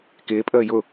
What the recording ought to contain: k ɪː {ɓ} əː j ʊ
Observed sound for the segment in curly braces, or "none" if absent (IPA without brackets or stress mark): pʼ